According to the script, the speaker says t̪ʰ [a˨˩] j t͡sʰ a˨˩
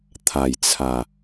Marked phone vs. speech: correct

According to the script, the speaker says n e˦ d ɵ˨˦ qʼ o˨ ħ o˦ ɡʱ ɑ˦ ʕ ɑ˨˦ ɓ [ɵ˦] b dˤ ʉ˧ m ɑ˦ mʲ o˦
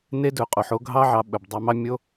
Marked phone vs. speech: incorrect: ɵ˨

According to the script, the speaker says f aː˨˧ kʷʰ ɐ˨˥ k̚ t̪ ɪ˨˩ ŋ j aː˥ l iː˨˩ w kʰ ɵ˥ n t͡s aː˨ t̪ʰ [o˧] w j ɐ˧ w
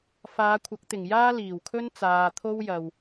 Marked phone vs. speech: incorrect: o˥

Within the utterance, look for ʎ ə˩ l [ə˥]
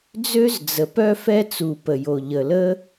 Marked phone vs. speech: correct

